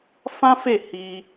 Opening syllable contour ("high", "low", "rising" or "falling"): high